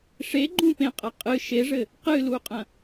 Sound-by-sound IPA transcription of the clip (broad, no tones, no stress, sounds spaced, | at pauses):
ʂ e ɡ͡ǃ ũ p ẽ qʼ ɐ qʼ ɨ ʃ e ʐ ɘ | q ɨ l u qʼ ɐ̃